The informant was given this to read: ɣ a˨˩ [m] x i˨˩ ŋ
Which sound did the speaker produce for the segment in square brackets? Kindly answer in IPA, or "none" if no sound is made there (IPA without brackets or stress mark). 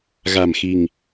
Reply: m